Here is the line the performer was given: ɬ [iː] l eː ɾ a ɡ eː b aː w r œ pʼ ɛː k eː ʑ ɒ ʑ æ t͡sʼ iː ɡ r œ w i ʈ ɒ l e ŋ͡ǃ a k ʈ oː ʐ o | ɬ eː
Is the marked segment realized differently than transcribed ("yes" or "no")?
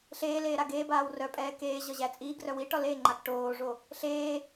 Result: yes